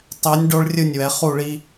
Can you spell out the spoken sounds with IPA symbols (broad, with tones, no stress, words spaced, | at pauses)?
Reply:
tˤɛ˩˧nʲ ɖo˧ɭrʲɯ˧˩nʲwɛ˩˧ χu˧˩ɭi˧